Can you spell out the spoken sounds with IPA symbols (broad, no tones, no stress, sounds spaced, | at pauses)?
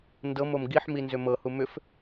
n d ɤ m o m ɡ i ħ m i n z ʏ m ɤ h u m ʏ f